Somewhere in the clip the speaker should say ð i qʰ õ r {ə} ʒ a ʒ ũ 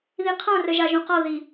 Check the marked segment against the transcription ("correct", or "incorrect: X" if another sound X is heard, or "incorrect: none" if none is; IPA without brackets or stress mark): correct